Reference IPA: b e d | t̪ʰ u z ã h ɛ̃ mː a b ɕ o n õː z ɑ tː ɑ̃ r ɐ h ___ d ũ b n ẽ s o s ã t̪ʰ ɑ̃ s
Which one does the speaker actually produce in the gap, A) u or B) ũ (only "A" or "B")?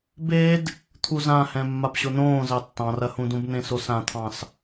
B